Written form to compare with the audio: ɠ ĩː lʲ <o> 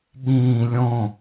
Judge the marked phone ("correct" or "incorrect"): incorrect